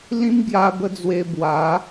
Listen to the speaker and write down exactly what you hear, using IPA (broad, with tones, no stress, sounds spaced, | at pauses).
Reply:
l ĩ˦ m ɡ j a˧ b ə˧ d͡z w e˧ b w a˨˦